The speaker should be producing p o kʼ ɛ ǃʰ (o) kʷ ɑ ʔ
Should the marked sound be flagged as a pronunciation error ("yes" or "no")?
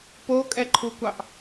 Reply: yes